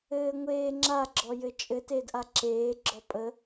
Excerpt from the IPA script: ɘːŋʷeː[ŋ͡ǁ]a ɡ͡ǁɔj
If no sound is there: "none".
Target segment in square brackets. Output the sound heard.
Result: ŋ͡ǁ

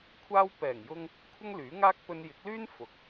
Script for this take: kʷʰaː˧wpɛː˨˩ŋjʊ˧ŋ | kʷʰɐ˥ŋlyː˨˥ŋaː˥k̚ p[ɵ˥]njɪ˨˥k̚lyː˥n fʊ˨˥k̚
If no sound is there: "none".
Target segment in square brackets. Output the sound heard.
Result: ɵ˧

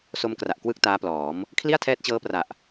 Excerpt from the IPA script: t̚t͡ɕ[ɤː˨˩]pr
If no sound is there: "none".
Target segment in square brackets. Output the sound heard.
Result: ɤː˦˥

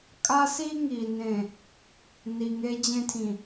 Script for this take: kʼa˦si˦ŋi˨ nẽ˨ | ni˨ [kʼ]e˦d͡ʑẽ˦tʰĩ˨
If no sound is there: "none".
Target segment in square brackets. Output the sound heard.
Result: ŋ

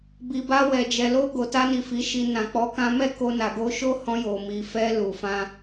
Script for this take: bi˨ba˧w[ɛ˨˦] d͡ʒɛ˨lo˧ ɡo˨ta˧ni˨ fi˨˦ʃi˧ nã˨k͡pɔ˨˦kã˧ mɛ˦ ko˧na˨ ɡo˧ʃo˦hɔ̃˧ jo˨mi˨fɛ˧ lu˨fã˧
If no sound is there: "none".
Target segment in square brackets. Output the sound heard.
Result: ɛ˨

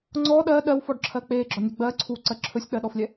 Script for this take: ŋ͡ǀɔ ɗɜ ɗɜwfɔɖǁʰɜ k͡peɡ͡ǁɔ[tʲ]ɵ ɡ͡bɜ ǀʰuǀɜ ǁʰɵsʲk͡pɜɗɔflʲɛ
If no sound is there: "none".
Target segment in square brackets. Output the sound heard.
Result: nʲ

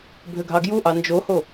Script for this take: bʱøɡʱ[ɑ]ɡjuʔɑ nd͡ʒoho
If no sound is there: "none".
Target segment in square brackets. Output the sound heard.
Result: ɑ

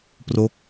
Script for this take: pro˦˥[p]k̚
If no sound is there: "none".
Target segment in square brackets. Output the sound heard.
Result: none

